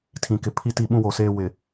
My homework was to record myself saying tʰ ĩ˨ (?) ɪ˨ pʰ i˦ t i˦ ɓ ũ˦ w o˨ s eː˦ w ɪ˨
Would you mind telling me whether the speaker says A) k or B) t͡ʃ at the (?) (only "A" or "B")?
A